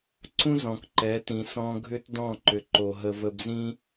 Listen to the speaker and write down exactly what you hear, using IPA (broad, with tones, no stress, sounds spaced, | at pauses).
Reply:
ǀ ũ˦ z ɔ̃˨ k ǃ ɛ˨˦ t ĩ˨ s ɔ̃˧ ɡʱ ʏ˦ t d ɔ̃˦˨ ǃ ʏ˨ ǃ o˨ ɦ ə˧ v ə˧ b z ĩ˦